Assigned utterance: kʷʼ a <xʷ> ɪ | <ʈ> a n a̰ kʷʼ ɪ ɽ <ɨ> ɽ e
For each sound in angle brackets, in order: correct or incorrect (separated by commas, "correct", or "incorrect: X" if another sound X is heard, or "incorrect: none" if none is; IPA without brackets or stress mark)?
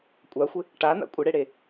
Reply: correct, correct, incorrect: e